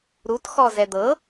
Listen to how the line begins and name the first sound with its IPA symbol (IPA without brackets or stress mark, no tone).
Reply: ɾ